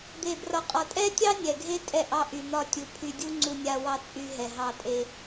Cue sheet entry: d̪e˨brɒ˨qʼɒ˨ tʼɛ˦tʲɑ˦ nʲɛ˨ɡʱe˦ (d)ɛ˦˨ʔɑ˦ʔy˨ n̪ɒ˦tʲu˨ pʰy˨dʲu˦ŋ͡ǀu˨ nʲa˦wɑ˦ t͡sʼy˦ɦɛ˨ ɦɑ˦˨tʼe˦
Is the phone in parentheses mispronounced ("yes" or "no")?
yes